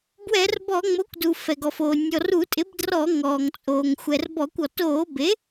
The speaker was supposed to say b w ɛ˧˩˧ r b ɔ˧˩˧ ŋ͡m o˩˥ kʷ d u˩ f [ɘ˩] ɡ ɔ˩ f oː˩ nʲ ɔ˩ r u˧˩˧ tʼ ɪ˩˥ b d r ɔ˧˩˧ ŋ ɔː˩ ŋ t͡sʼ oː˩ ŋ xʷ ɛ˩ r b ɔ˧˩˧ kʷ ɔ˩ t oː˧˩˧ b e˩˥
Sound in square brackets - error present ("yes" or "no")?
yes